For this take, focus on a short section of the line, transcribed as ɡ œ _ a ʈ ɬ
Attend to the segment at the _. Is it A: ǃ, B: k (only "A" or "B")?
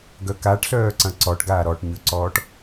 B